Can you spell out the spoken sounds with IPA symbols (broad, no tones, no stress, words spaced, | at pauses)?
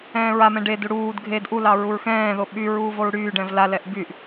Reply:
ɛ̃ːɹamɛ̃ ɖedu ɽuːd ɡʱed ʔulɑ ɹuɹxɛ̃ːðo ɓy ɹuːvoɹɽyːɖɛ̃v lalɛʔ byʔ